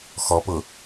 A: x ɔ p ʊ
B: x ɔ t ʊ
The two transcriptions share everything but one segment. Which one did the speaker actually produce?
A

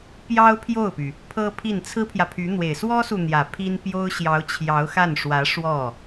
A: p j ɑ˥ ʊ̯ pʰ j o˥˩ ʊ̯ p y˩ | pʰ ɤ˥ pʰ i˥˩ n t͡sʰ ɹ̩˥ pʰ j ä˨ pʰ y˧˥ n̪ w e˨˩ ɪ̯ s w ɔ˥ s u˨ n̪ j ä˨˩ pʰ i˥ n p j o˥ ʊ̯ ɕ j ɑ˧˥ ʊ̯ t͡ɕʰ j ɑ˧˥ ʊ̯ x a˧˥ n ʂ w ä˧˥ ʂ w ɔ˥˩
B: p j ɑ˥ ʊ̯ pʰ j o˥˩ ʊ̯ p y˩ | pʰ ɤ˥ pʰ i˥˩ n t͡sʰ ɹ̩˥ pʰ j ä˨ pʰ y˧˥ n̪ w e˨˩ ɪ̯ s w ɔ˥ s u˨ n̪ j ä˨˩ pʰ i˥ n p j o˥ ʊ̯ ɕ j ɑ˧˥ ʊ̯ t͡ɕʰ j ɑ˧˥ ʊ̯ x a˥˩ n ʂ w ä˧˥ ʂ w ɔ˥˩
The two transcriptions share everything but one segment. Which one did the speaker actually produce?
B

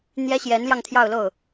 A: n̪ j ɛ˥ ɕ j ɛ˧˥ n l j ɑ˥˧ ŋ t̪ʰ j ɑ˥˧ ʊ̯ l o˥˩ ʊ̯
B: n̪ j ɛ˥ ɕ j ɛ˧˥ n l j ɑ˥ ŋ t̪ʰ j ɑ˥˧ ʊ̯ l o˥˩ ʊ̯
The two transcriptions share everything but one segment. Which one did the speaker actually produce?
A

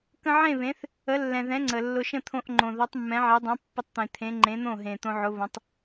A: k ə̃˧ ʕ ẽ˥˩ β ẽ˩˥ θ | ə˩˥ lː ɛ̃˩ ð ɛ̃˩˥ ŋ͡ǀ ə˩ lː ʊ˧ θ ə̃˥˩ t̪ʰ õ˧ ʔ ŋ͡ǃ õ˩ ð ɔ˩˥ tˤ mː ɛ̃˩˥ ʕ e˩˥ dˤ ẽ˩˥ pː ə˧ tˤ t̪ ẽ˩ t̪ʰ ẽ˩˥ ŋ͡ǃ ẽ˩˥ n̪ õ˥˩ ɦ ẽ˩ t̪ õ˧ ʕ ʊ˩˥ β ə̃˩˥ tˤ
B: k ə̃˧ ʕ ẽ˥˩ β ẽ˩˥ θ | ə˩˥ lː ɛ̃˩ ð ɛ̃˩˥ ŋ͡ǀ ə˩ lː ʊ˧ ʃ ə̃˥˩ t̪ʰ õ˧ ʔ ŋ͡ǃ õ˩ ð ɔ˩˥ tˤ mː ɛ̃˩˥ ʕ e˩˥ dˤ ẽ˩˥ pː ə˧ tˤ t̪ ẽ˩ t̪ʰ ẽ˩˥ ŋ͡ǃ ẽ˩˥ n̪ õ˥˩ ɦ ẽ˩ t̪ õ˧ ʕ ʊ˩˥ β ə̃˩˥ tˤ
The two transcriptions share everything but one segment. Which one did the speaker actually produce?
B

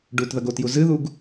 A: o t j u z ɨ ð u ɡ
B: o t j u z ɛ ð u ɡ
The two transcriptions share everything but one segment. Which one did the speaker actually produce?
A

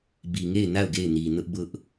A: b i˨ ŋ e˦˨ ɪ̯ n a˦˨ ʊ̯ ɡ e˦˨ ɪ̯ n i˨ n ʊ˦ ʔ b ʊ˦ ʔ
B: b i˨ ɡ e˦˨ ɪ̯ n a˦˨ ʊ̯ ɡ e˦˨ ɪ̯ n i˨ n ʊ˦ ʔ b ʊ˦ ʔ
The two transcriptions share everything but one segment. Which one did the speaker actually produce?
A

